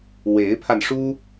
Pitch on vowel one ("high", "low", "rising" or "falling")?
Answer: rising